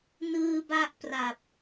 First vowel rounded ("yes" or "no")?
no